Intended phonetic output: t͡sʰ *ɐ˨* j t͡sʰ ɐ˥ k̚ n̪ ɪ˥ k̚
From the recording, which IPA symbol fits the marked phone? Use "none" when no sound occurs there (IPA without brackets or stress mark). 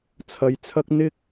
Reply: ɐ˨